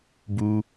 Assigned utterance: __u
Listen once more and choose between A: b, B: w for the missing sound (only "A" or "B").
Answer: A